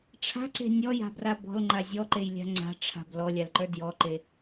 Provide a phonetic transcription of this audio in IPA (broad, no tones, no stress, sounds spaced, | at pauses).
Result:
ʈ͡ʂʰ a̤ ǀ e̤ nʲ ɔ j a̤ b r a b ɔ̤ l ŋ͡ǃ a zʲ ɔ ǃ e j lʲ a̤ ŋ͡ǀ a̤ ʈ͡ʂʰ a̤ b l ɔ lʲ a l ǃ ə˞ d j ɔ ǃ e